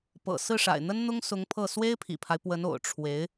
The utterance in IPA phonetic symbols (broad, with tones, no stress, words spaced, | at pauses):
pɤ̰˨˩ sɹ̩˥˩ʂa̰˨˩ɪ̯n̪ə˥n n̪ʊ˥ŋsʊ˧˥ŋpʰɤ˥˩ swe˥ɪ̯pʰḭ˨˩pʰa˦ɪ̯ pwə˧˥no̰˨˩ʊ̯ ʈ͡ʂʰwe˧˥ɪ̯